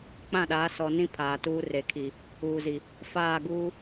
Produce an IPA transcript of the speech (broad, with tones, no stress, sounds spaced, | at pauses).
k͡p ã˦˨ ɗ aː˨˦ s ɔ˨ n ĩ˦ pʰ aː˨ t uː˦ r e˨ kʰ i˨ | uː˨ z i˨ | f aː˦˨ ɡ uː˦